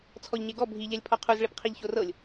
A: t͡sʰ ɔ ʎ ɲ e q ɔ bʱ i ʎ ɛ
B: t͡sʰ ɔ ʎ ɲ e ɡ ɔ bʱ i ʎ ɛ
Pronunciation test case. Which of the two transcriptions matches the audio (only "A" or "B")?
B